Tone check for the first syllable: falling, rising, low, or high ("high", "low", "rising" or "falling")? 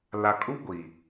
low